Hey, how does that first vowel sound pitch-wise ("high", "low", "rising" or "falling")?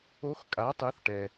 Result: rising